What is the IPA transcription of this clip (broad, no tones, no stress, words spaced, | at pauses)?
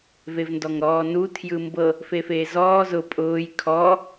vevndɔŋɾɔːnu tʰjɯmbɤ | fefeːzɔː zʊ pʼʊːj kʰɔ